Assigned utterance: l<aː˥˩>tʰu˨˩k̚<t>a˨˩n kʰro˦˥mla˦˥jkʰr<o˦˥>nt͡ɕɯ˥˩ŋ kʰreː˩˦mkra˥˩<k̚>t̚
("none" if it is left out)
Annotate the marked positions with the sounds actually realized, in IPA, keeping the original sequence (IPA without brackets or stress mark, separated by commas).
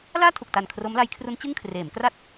aː˥˩, t, u˦˥, none